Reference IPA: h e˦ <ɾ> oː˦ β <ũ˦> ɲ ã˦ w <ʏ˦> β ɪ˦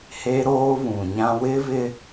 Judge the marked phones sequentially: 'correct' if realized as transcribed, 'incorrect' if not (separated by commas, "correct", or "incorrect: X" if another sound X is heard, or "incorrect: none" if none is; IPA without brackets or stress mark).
correct, incorrect: ũ˨, incorrect: ɪ˦